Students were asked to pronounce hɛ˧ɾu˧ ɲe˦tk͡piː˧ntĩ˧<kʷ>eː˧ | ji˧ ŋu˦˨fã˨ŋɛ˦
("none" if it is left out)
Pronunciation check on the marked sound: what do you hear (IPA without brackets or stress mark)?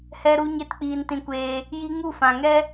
kʷ